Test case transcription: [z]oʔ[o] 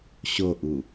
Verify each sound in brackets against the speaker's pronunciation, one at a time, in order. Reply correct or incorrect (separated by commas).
incorrect, incorrect